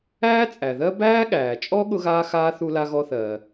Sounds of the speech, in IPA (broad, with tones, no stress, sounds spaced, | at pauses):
æː˥ t͡sʼ æ˩ ð ɜ˥ b æː˥ ɠ æː˩ t͡ʃʼ ɔ˥ ɠ ʊ˥ ɣ aː˥ x aː˥ θ u˥ l a˥ ɣ ɔ˥ θ ɜː˩